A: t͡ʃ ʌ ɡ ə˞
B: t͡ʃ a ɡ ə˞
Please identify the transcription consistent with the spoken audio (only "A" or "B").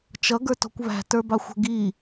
A